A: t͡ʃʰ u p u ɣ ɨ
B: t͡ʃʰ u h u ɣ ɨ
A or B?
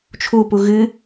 A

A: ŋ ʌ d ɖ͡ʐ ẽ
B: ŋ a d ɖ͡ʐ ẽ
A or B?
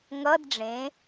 A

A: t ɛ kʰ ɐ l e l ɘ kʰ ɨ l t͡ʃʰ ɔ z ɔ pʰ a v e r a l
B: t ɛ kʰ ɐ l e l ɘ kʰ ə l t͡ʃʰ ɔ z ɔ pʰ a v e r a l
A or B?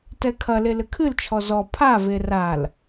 A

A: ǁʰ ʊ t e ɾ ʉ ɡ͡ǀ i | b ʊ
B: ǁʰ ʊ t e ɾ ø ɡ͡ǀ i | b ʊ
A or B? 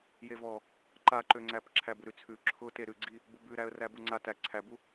A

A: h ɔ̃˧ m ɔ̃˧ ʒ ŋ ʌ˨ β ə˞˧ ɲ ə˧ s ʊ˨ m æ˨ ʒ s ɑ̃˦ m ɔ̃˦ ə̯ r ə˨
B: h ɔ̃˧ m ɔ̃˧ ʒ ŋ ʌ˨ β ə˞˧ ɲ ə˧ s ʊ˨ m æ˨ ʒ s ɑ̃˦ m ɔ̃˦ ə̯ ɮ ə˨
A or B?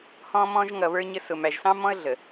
B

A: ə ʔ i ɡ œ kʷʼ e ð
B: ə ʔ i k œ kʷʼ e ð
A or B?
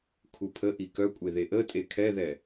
B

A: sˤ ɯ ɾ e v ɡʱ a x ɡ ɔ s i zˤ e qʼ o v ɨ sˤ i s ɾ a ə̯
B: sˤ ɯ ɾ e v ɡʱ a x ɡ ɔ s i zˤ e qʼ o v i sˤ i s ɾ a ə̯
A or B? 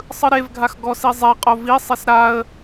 B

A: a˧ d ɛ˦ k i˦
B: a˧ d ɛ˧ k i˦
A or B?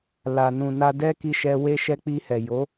A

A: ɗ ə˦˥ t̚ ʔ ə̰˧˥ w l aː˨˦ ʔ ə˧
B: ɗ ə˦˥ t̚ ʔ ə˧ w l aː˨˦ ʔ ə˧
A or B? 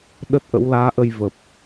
A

